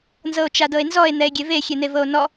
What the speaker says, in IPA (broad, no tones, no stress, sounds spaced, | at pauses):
n z ɤ o̯ t͡ʃ a d ɤ e̯ n z ɔ e̯ n̪ ɛ e̯ ɡʲ e v e xʲ e n̪ e v ɤ o̯ n ɔ